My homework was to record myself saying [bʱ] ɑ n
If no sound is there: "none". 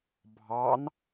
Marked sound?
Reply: bʱ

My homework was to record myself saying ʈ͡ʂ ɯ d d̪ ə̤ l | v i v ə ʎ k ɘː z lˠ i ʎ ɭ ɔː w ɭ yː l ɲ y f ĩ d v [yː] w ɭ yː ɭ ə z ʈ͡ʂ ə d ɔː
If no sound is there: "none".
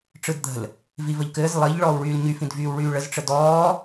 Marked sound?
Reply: yː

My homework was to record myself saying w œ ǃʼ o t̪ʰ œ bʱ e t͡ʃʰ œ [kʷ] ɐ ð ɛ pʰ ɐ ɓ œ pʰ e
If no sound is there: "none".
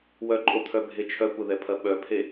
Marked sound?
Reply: kʷ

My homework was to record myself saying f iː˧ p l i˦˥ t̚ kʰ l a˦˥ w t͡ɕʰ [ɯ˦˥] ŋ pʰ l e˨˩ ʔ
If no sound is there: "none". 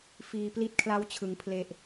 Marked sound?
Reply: ɯ˩˦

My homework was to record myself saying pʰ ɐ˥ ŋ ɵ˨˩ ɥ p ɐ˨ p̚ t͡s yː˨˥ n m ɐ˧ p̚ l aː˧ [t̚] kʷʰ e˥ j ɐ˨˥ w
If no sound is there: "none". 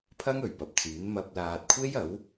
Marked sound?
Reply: t̚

